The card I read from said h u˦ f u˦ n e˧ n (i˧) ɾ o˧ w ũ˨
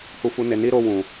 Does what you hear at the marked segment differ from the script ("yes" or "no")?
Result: yes